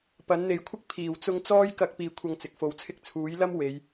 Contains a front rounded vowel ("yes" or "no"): no